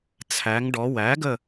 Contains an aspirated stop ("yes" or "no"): yes